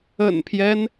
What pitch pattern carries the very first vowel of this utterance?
low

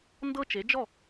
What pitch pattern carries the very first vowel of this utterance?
high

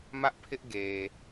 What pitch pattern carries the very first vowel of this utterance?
high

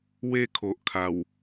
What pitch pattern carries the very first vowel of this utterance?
falling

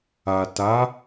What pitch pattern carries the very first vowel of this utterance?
low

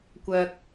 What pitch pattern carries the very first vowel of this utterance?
low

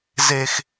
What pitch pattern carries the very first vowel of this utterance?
high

